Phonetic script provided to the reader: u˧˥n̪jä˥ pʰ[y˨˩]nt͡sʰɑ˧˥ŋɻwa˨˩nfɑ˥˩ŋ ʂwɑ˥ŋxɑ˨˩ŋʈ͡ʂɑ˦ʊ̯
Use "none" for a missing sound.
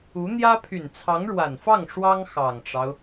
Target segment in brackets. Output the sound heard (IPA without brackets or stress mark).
y˨˩